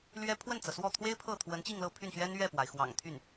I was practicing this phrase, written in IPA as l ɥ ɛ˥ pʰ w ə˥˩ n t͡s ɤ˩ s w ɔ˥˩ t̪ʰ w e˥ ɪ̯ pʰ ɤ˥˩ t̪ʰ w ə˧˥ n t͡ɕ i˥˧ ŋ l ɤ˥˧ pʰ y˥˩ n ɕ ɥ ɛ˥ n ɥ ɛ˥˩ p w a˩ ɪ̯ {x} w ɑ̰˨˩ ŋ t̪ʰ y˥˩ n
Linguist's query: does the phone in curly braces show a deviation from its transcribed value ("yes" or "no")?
no